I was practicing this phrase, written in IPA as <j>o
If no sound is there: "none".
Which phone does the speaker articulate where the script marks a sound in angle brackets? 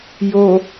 j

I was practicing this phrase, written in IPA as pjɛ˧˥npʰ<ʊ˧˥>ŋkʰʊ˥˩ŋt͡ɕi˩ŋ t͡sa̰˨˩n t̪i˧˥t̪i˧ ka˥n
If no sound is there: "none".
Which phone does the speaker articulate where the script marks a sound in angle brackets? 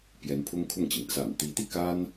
ʊ˥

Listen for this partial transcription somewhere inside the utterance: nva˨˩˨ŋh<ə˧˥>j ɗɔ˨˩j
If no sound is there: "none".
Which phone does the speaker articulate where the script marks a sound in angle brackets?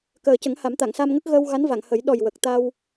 ə˨˩˦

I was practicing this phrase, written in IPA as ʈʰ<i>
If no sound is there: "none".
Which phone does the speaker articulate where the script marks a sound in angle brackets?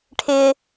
ɪ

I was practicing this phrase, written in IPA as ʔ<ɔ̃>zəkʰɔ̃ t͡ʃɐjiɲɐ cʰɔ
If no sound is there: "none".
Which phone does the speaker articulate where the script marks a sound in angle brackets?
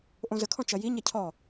õ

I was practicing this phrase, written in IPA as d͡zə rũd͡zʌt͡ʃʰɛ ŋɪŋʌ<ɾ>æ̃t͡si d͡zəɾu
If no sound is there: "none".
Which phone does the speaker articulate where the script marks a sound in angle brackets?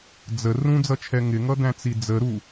d̪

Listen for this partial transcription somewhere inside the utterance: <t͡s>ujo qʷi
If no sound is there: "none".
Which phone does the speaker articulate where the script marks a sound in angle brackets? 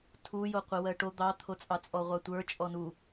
tʰ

